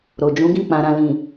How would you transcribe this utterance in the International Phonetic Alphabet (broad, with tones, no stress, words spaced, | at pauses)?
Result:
ɾo˨d͡ʒũ˨˦ɡĩ˦˨ k͡pã˨ɾã˨lĩ˨